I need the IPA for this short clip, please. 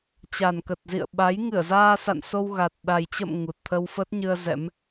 t͡ɕ a˨˩ n k ə˨˩ t̚ z ḭ˧˨ ə̯ ɓ a˨˦ j ŋ ɨ˧˩ ə̯ z aː˧ s a̰˧˨ n s o˧ w ɣ a˨˩ t̚ ɗ a˨˩ j t͡ɕ ə̰˧˨ m ŋ u˨˩ t̚ t̪ʰ ə˧ w f ə˦˥ t̚ ɲ ɨ˧ ə̯ z ɛ̰˧˥ m

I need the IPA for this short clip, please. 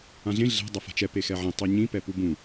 ã ɮ ẽ ɮ ɛ̤ dˤ ʌ f a̤ t͡ʃ ɛ p e x ɛ ʕ ẽ tˤ i ɲ ĩ p ɛ p u b ũ

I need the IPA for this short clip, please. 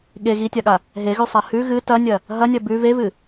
ɠ e ɣ i tʲ a ɠ a | ɦ e ɣ ʉ sˤ a h ʉ ɣ ɨ t ɐ nʲ ɐ | ɦ ɐ nʲ ɐ b ʉ v e v ɨ

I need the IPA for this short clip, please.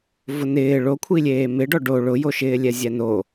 v ʊ n ɪː ɭ o kʷʰ i lʲ eː m ɪ ɖ ɔ ɖ o ɭ ʊ j o ʃ ɪː lʲ ɛ zʲ ɛ n o

